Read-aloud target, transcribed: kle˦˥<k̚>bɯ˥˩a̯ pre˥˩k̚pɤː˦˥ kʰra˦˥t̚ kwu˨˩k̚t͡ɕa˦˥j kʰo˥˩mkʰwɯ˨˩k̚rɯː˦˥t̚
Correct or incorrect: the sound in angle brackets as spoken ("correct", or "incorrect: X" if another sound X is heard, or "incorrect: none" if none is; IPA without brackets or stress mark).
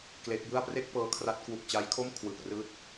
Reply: correct